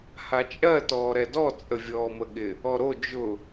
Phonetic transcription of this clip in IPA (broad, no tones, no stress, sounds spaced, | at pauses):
h a t͡ʃʼ ɜ t ɔː ɾ ɛ d ɔ t͡sʼ ə vʲ ɔː m ə ɠ ɪ | ɔ ɾ o d͡ʒ ʊ